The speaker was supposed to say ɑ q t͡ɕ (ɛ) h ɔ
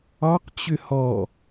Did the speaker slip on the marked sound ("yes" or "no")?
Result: yes